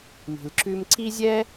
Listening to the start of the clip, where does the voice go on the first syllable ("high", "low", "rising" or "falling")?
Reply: low